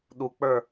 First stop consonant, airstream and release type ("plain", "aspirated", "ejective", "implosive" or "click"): implosive